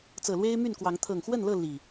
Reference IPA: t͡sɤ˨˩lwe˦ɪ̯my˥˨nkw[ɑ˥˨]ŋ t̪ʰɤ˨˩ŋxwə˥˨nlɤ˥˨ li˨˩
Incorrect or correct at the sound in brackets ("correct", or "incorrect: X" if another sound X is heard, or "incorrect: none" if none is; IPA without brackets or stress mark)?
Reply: incorrect: ɑ˨˦